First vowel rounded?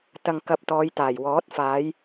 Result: no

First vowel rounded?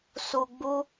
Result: yes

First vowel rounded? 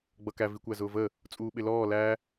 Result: no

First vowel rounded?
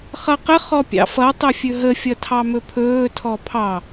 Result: no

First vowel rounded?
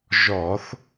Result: yes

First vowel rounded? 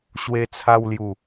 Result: no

